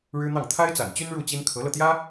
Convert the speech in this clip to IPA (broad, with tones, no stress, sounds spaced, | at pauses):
ɻ ɻ̩˥ n̪ ɑ˥˩ ŋ t̪ʰ a˥ ɪ̯ t͡s a̰˨˩ n t͡ɕ y˥ n ɻ u˥˩ t͡ɕ i˥ n kʰ ɤ˧˥ l ɤ˧ t̪ j ä˥